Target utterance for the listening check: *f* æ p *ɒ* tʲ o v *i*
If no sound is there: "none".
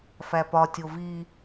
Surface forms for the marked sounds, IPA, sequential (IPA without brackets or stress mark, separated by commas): f, ɒ, i